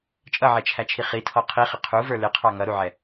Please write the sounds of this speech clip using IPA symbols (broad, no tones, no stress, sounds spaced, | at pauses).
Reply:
t͡ʃʼ ʌ ʕ ɛ t͡ʃʰ æ t͡ʃʰ i χ i tʰ ɔ qʰ i χ ɪ qʰ u v ə˞ l ɪ qʰ ɑ ŋ ʌ ɾ u ʕ ɛ